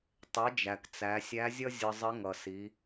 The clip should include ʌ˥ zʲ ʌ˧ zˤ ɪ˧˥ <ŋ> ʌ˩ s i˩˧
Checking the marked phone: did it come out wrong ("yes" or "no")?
no